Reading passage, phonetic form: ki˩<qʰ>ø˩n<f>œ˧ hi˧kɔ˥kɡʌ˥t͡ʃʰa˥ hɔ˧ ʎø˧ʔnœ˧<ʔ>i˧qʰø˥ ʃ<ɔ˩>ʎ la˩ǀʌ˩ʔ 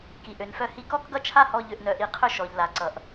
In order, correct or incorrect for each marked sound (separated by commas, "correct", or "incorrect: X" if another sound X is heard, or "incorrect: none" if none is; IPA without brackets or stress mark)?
incorrect: ʔ, correct, correct, correct